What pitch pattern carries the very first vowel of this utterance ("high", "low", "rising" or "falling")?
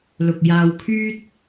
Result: low